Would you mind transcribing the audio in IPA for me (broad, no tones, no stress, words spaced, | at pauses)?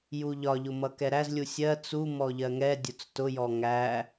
juʎɒʎʊ mʌkɛɾæzlʲu sʲɜ t͡su mɔʎɜŋɛdʲʊt͡s tʊjɔ ŋæ